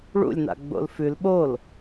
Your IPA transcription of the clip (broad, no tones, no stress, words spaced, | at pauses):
ɭṵlʲna̰ ɡ͡bo̰lfʉl ɓol